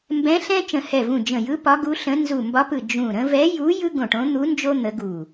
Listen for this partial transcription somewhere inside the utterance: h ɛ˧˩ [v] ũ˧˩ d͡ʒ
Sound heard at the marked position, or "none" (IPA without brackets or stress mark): v